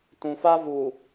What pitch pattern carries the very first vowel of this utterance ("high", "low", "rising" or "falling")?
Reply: low